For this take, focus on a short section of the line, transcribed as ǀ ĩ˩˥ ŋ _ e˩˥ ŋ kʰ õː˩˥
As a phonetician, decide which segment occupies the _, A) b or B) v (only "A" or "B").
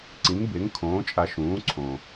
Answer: A